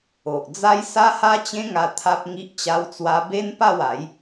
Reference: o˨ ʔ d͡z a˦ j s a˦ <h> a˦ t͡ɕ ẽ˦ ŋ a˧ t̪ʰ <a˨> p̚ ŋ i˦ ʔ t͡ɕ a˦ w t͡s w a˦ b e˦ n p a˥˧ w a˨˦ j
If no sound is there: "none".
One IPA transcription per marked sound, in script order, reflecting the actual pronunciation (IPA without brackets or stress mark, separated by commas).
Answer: h, a˦